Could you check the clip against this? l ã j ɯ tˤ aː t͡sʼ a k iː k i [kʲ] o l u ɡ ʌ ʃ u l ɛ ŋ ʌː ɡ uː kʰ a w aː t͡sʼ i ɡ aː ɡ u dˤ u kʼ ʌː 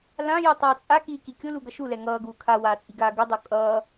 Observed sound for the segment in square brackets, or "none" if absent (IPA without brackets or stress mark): kʲ